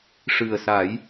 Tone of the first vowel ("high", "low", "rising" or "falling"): low